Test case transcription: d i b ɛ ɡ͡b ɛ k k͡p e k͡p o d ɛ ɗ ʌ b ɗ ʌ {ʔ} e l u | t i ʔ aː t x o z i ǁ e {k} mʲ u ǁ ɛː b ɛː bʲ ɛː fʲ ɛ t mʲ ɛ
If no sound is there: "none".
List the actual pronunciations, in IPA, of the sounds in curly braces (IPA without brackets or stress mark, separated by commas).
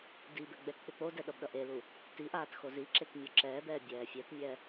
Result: ʔ, k